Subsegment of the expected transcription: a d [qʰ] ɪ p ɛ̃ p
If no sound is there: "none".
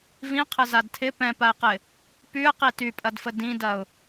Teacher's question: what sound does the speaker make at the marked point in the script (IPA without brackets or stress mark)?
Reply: tʰ